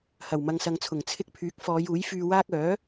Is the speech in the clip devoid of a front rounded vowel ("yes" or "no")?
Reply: no